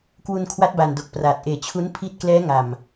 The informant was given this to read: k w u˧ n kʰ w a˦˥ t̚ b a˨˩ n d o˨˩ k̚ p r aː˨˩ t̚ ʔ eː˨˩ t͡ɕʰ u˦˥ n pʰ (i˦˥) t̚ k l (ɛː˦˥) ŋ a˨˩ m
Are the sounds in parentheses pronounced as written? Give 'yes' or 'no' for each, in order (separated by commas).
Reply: yes, yes